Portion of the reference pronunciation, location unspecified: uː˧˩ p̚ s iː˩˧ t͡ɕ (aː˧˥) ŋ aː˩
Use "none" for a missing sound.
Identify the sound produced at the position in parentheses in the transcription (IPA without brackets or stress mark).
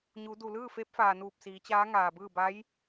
aː˧˥